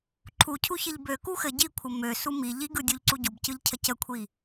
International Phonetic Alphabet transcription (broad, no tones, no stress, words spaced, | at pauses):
ǃʰucʰuçɘʎ bøku xɘ ɟikʷʰə møsu mi ʎiɡɯdʲuʎǀu ɟubcɯʎcʰə cəkʷʰi